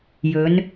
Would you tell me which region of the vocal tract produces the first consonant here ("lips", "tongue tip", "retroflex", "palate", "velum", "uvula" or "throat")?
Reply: palate